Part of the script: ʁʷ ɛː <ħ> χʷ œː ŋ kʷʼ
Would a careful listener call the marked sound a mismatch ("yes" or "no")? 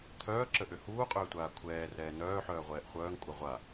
yes